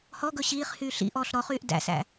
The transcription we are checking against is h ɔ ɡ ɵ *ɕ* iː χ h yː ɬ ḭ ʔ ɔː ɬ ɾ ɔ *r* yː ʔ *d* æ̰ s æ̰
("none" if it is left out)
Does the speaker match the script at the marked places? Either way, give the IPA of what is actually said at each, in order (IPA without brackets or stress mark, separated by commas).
ɕ, χ, d